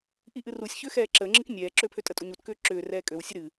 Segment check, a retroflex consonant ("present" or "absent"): absent